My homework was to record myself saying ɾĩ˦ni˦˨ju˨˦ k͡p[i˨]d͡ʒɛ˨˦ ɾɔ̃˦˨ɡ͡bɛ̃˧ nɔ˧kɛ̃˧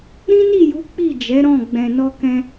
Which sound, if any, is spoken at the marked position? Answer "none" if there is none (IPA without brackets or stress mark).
i˦˨